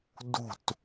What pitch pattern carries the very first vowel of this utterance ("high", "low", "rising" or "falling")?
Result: falling